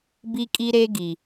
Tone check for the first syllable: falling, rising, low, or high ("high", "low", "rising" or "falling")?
high